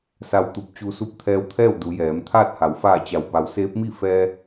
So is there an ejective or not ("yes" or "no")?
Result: no